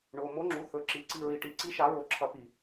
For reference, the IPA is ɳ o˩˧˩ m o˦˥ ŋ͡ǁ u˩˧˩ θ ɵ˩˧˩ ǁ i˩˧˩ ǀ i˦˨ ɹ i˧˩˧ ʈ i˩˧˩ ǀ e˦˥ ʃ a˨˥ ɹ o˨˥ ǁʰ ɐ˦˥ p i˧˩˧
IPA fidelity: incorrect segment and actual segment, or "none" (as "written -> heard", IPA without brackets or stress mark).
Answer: e˦˥ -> i˦˥